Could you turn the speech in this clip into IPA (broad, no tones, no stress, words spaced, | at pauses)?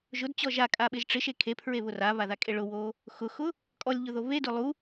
ʒʊdt͡ɕɔ ʒakʼaɓɪʒ ʈ͡ʂɪʃe kʰepʰɹeβʊ raβaðakʼe ɭʊwo | xʊxʊ | kʼɔlʲʎʊðo βedʊ lˠu